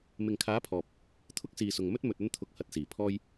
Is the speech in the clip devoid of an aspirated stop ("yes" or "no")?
no